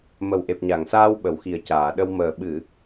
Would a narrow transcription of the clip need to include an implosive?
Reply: yes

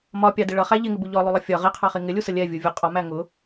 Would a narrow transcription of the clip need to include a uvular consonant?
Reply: yes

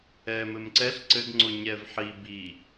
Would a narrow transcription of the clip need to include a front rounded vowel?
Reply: no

